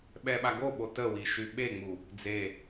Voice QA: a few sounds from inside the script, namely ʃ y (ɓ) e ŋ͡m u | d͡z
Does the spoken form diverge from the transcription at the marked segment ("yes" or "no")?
no